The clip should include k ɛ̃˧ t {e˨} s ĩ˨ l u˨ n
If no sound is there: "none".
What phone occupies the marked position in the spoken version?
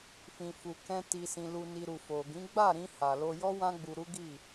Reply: i˨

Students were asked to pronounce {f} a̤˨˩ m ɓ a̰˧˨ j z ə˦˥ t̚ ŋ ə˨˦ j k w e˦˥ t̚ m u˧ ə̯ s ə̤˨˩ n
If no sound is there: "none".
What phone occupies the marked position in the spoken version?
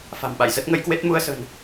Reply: f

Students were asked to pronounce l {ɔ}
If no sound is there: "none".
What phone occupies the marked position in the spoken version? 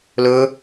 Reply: ɵ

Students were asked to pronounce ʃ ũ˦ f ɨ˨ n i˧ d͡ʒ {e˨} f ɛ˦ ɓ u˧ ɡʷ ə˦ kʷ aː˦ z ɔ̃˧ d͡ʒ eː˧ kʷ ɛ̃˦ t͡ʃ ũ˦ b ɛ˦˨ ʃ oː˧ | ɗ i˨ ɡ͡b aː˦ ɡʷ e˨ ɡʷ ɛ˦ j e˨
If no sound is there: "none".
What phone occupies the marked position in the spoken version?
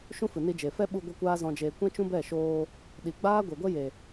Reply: e˨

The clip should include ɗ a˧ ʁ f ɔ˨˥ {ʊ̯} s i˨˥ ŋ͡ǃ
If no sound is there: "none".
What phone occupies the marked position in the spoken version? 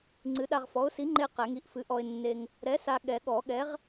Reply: ʊ̯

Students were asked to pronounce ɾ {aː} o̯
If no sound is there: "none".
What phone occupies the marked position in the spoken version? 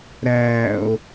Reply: æː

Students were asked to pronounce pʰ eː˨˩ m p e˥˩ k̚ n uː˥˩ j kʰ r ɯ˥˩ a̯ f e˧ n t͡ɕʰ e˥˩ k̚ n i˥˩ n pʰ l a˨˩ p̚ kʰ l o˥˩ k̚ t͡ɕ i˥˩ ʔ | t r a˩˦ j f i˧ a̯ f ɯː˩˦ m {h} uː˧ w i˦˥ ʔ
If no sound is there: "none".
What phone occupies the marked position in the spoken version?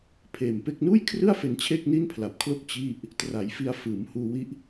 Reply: h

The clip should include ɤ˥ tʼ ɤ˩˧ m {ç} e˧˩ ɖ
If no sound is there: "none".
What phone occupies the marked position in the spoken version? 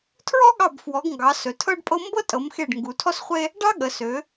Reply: x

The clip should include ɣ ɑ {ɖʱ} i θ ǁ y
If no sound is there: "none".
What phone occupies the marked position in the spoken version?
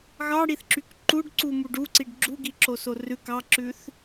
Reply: ɽ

